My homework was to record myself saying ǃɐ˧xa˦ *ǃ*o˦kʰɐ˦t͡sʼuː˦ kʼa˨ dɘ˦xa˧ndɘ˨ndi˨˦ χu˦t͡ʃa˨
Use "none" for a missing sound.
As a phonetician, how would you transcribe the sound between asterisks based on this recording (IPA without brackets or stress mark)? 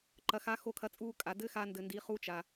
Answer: x